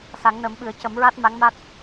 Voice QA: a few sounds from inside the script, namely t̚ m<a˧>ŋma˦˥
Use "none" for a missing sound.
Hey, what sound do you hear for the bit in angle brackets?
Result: a˧˥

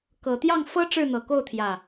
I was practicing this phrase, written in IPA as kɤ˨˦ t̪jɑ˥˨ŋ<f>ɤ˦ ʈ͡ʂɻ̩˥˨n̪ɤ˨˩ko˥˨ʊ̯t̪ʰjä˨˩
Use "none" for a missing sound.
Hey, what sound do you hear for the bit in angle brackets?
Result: f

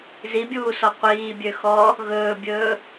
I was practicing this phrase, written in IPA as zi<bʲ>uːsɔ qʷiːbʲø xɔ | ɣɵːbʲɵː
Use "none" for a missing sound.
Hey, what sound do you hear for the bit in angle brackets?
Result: bʲ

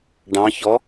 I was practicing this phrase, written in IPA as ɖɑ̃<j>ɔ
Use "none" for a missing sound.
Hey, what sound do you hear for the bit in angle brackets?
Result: ç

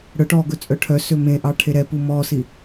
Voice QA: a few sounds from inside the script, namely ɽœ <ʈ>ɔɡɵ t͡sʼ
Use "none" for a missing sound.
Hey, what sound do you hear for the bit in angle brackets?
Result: ʈ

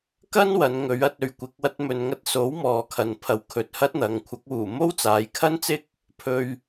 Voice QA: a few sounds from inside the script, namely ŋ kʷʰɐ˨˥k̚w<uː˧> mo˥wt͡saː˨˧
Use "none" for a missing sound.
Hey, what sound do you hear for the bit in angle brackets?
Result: uː˨˩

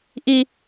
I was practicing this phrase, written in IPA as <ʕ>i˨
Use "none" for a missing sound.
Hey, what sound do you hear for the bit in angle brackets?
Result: ʔ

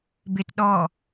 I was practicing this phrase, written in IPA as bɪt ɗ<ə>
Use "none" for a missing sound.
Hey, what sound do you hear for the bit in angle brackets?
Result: ɔ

